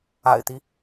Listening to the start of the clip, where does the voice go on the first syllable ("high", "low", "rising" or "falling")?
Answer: low